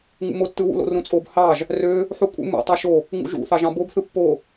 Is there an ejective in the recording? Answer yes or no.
yes